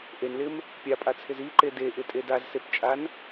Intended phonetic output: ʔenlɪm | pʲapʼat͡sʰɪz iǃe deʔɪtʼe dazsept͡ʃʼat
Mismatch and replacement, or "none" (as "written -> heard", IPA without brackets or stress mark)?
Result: t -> n